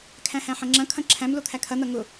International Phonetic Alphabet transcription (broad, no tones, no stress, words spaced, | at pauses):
kʰæ̃hæ̃ħɐ̃ŋ͡ǁɐ̃ kʰɐ̃ǁʰæ̃m lot̪ʰækʰɐ n̪ɐŋʊ